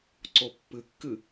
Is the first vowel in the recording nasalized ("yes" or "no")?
no